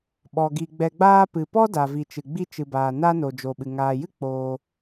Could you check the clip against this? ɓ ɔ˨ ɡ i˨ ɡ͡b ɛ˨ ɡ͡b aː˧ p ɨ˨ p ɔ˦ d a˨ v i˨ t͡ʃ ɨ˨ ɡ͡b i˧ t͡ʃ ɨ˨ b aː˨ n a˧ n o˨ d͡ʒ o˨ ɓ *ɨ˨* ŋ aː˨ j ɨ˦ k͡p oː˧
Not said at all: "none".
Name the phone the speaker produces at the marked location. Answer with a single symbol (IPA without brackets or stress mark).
ɨ˨